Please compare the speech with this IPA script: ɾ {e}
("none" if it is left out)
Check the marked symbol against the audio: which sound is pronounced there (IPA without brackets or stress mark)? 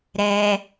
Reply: ɛ